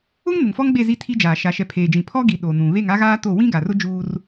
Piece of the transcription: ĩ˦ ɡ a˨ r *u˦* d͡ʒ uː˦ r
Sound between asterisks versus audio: incorrect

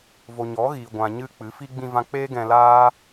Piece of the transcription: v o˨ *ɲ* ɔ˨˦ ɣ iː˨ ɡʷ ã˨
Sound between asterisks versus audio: correct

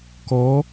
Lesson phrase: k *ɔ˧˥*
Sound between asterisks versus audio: correct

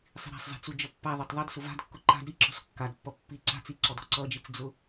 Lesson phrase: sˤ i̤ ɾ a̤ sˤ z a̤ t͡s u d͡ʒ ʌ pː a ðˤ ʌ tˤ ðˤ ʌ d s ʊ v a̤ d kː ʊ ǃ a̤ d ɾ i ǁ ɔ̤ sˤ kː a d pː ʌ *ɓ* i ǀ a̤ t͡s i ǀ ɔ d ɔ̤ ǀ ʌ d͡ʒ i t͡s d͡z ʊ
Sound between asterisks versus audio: incorrect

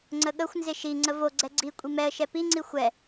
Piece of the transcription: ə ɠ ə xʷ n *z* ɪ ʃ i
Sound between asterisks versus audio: correct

